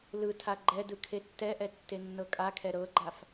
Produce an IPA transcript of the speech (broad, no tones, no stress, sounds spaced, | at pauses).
l ɯ tʰ a ɡ͡ǃ ɛ d ɯ kʰ e tː ɛ ʔ ɛ tː e nː ɤ kʼ a kʰ ɛ ɾ ɤ ɡ͡ǃ a f